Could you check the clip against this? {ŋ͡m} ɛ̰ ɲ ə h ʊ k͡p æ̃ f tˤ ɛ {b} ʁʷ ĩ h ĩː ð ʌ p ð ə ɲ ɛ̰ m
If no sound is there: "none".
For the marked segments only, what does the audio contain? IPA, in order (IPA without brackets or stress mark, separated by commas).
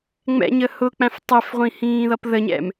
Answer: ŋ͡m, f